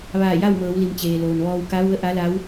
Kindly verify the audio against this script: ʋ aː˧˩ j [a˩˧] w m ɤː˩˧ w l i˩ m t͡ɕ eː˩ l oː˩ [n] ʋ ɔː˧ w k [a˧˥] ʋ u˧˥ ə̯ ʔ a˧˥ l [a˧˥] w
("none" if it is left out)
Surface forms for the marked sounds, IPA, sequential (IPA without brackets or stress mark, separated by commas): a˥˨, n, a˧˥, a˧˥